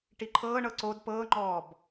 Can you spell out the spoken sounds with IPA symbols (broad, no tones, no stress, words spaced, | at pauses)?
ʈiǃʰɤːɳɤ ǀod pɤːŋ͡ǃɔːb